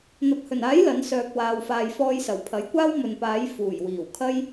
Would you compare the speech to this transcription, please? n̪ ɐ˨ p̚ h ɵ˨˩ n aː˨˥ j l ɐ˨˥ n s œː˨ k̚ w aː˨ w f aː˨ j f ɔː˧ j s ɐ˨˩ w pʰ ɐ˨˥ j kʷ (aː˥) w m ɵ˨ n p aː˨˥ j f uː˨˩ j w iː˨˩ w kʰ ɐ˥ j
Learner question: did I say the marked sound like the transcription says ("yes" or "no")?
yes